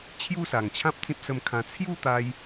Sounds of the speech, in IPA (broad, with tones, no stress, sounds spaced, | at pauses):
t͡ɕʰ j u˥˧ s a˨˩ ŋ t͡ɕʰ ã˦ p̚ t͡s ĩ˦ p̚ s ə˧ m kʰ ã˧ t͡sʰ j u˥˧ t̪ a˧ j